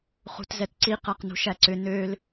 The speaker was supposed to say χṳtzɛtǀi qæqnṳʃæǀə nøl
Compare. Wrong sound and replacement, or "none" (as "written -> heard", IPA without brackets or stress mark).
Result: ə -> ʏ